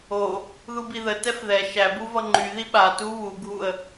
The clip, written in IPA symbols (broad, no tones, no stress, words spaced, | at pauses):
o | ðubiðə tɛfðɛ ʃæbu vʌŋ͡ǃyði ɓa tu βuɡʱuə̯